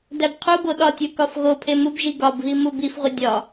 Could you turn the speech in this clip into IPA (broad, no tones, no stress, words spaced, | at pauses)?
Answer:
dæbqʰubo ɗɒtʲu kɒfɣopʰe mubʒi ɡɒbβi mubifʁʷi dʲɒ